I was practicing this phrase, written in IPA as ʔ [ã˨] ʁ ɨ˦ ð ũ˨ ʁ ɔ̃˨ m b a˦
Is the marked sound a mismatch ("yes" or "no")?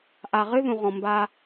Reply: yes